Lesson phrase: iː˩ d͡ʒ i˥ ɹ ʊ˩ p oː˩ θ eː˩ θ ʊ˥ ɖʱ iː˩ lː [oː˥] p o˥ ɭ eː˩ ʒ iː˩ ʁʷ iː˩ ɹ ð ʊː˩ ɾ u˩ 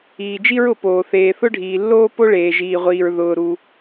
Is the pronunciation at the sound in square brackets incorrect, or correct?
correct